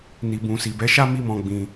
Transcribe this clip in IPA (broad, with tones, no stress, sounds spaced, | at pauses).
n i˨ b ũ˨ s i˨ b ɛ˨˦ ʃ a˦ m i˦ m ɔ̃˧ ɡ͡b ĩ˧